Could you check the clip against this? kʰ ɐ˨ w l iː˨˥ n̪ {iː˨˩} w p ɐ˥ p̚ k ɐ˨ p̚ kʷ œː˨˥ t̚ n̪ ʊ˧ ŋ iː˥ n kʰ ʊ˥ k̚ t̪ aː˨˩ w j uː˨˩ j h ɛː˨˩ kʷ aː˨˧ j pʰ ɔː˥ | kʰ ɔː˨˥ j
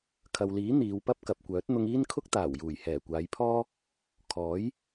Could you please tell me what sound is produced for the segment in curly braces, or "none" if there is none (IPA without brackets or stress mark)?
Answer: iː˨˧